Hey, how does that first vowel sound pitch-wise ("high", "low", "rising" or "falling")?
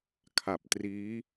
low